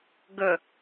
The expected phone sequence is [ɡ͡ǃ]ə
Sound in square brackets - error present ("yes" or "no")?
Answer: yes